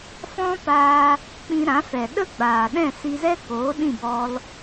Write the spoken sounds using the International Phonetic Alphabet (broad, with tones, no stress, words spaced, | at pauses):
fɔ̃˦paː˧ | k͡pĩ˧ɾã˨˦fɛ˨ ɗə˦ɡ͡baː˨ɗɛ̃˦˨ si˧zɛ˦koː˨˦ ɗĩ˦˨bɔ˧l